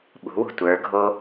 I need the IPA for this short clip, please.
ɓ ṳ w ṳ tʷ ə˞ ɡʱ o

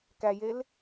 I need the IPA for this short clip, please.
k æ j e l

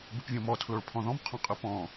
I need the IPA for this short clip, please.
b ɨ p vʲ õ m ɔ tʰ l o ɭ pʰ ɔ̃ ð ɔ̃ m qʰ ɔ̃ qʼ ɨ p ɔ̃

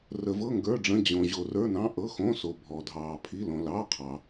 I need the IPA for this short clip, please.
r ə˩ v ɤ˩˧˩ ŋ ɡ ə˞˩˧˩ ɖ͡ʐ ə̃˩˧˩ d͡ʑ õ˩ ʑ o˩ r ə˞˩˧˩ n ɑ̃˩˧˩ ʔ ɤ˩˧˩ x õ˩˧˩ s o˩ bʱ ɔ˩ dʱ ɑː˩ pʰ i˩˧˩ l õ˩ l ɑ˩˧˩ qʰ ɑ˩

